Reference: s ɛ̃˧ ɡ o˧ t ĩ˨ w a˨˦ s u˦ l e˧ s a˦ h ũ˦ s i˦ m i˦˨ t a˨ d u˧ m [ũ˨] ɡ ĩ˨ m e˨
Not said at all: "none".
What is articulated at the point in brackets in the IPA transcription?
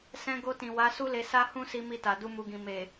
u˨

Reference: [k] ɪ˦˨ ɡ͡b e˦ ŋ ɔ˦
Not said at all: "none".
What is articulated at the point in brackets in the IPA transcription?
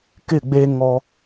k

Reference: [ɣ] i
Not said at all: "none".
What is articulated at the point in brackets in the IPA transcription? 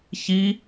ç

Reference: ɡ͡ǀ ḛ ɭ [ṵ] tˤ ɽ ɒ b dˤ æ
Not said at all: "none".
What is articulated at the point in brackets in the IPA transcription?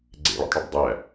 ṵ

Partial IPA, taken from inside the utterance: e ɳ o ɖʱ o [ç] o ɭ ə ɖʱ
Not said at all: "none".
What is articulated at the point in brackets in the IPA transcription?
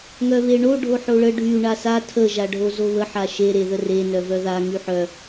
ħ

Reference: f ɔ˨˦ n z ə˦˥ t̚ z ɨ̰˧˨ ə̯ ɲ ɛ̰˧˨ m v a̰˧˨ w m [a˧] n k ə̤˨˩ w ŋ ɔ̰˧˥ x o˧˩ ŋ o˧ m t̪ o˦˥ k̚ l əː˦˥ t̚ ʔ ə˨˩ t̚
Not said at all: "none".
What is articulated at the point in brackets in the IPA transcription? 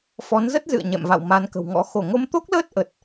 a˨˦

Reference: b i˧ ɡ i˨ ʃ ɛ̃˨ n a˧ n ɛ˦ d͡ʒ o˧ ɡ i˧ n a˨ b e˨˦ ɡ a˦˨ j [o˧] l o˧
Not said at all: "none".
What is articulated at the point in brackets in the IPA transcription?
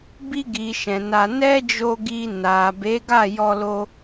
ɔ˧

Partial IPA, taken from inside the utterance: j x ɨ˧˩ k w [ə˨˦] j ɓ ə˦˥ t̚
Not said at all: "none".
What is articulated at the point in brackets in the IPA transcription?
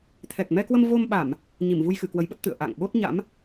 ə˨˦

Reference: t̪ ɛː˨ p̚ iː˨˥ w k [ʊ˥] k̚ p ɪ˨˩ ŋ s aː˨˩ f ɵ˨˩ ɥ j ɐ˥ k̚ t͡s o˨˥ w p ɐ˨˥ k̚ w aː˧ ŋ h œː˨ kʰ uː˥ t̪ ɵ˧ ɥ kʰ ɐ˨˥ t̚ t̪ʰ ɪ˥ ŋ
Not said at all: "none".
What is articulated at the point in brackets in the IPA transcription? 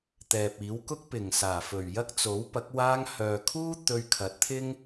ʊ˥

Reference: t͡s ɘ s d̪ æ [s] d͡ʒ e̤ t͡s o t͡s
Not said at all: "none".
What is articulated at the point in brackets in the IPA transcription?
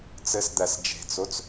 s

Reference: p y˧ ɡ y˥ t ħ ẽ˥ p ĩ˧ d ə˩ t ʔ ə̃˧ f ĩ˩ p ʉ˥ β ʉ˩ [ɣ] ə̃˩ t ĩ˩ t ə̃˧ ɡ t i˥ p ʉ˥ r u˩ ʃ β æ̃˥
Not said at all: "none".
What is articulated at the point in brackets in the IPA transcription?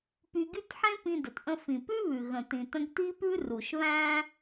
ɣ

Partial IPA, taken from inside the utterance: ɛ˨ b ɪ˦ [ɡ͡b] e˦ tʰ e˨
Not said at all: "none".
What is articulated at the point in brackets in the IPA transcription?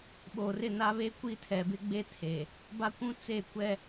ɡ͡b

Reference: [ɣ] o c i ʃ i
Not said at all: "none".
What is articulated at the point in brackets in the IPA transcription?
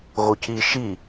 ɣ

